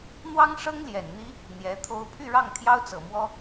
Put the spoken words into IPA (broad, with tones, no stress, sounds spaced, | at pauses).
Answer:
n̪ w ɑ˥ ŋ ʂ ɤ˥ ŋ l j ɛ˨˩ n n̪ i˥ | n̪ j ɛ˧˥ t̪ʰ o˥ ʊ̯ pʰ y˥˧ ɻ ɑ˥˩ ŋ t̪ʰ j ɑ˥ ʊ̯ t͡s ɤ˨˩ m w ɔ˥